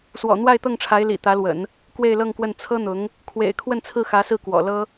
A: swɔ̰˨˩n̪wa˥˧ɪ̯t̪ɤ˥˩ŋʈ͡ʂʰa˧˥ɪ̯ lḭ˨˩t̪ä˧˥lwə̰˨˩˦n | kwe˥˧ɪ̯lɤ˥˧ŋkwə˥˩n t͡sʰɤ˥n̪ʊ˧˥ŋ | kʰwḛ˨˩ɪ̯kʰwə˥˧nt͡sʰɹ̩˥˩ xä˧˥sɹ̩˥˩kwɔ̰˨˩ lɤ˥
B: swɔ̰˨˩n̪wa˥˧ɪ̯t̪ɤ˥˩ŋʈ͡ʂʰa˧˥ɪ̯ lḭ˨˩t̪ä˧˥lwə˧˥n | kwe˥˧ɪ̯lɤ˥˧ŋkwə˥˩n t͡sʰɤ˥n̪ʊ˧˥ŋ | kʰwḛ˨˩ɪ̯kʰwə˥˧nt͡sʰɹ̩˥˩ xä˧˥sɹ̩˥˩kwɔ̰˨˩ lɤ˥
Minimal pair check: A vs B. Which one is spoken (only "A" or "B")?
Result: A